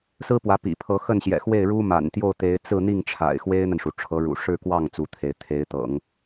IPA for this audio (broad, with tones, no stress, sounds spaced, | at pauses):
s ɹ̩˥ p w ä˧˥ p ḭ˨˩ pʰ ɤ˧˥ x ə˥˩ n ɕ j ɛ̰˨˩ x w e˥˩ ɪ̯ ɻ u˥ m a̰˨˩ n t̪ j o˥˩ ʊ̯ t̪ e˧˥ ɪ̯ t͡s ɹ̩˥˧ n̪ i˥˩ ŋ ʈ͡ʂʰ a̰˨˩ ɪ̯ x w e˥ ɪ̯ n̪ ə˨ n ʂ u˩ ʈ͡ʂʰ ɤ˧˥ ɻ ṵ˨˩ ʂ ɻ̩˥˧ k w ɑ˥˩ ŋ t͡s u˧˥ t̪ʰ e˧˥ ɪ̯ t̪ʰ e˧˥ ɪ̯ t̪ ɤ̰˨˩˦ ŋ